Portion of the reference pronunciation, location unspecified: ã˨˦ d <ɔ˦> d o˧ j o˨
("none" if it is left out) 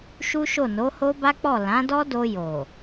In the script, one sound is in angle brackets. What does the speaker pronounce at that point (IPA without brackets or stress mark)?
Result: ɔ˦